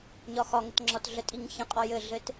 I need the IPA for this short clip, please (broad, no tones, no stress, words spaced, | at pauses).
ɲɒxɒŋətŋ͡ǁɒt ɮətʼiŋçə̃qʼɒ jɘɮɘt